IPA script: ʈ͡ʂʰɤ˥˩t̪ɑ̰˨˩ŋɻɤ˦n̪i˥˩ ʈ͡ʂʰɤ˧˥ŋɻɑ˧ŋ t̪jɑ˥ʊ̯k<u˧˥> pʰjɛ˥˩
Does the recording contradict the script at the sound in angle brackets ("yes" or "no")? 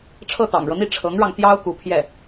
no